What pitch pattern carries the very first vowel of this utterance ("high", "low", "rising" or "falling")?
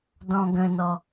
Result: low